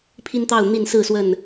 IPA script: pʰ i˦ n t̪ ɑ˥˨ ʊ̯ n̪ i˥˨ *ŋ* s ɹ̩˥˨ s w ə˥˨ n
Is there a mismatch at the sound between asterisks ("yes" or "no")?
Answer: yes